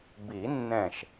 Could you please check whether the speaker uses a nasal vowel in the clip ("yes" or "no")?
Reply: yes